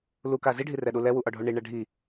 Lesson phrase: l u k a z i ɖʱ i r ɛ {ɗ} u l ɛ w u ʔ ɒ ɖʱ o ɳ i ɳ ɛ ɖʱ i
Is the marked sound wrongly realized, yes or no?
no